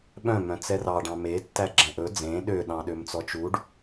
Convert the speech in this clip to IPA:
ɓ œ̃ m œ̃ t͡s ɛ r ɑ ɖ ɑ̃ m e tː æ ɡ͡ǁ ɛ̃ ʔ ɵ d͡z ẽ ɗ ø ɗ ɑ̃ ɗ ø m t͡s ɔ t͡ʃ u ɖ

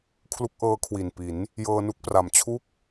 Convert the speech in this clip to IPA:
kʰ l u˦˥ k̚ ʔ ɤː˦˥ kʰ w i˨˩ n p i˩˦ n | j ɤː˧ n u˦˥ k̚ p r a˨˩ m t͡ɕʰ u˥˩ k̚

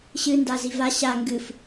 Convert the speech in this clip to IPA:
ɕ ɨ n d a z i v a ɕ a ŋ ɡ ɨ f

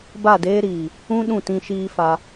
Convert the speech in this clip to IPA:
b a˦˨ d eː˦ ɾ iː˨ | ũ˦ ɗ ũ˦˨ t ĩ˦ ʃ iː˦ f a˧

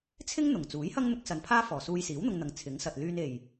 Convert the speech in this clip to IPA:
t͡sʰ ɪ˥ ŋ n̪ ʊ˨˩ ŋ t͡s uː˨˥ j h ɐ˥ ŋ n̪ ʊ˨˥ k̚ s ɐ˨ n pʰ aː˥ f ɔː˨˩ s uː˧ j s iː˨˥ w n̪ ʊ˧ ŋ n̪ ɐ˨˧ ŋ t͡sʰ ɪ˨˥ ŋ s ɐ˨ t̚ l yː˧ n e˨˩ j

